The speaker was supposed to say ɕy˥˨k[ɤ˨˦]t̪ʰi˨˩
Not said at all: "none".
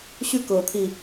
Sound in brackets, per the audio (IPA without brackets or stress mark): ɤ˨˦